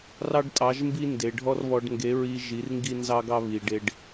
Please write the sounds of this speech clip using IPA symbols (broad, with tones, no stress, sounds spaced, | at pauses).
r ɑ˦ ɖ tʼ ɑ˨˦ ʒ m b i˦ n d e˨ ɖʱ ɔ˦ r β ɔ˧ ɖ ŋ ɡ e˨˦ ɹ i˧ ʒ i˨˦ r ŋ ɡ i˦ n z ɑ˦ ɡ ɑ˦ β i˨ ɖ e˧ ɖ